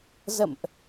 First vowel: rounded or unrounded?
unrounded